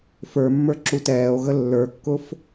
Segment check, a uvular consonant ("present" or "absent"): absent